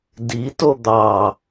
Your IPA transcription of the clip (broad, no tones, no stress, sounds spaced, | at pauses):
d i t o d̪ ɑ